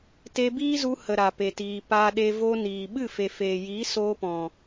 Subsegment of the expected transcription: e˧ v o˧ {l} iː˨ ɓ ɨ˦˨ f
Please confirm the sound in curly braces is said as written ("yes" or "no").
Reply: no